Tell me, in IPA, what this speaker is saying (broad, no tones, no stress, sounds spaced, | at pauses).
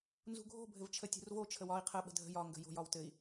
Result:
n z ṳ ɡʱ o̤ bʱ ɘ v t͡ʃʰ ə tʲ ṳ r v o t͡ʃʰ ə w ɒ i̯ qʰ ə ɓ ə̤ dʱ ə̤ j ɒ ŋ ɡ ə̤ j o̤ j ɒ w t ɘ i̯